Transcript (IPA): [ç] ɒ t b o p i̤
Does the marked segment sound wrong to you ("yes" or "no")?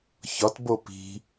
no